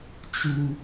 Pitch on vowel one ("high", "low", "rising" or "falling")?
high